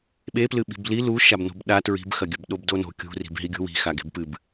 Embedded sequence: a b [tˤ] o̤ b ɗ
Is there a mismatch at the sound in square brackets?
yes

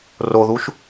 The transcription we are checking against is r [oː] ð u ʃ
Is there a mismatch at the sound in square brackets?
yes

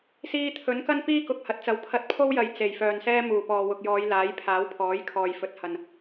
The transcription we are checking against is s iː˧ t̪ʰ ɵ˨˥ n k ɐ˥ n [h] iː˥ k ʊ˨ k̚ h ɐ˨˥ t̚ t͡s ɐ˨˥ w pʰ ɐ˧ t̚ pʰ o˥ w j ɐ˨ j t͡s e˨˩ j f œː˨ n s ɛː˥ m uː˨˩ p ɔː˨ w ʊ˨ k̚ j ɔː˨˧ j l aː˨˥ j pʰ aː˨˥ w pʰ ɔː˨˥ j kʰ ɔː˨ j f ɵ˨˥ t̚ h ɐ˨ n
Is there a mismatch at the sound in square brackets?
yes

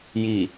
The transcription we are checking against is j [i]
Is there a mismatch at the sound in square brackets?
no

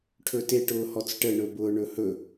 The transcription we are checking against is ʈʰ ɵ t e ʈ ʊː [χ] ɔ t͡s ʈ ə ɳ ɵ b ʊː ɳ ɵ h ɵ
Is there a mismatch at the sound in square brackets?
yes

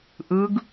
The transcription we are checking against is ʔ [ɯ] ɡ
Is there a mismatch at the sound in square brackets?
no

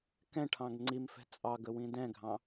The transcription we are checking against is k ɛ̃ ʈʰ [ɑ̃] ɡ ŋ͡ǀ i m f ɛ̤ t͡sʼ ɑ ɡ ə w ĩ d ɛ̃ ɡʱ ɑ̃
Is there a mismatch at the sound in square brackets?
no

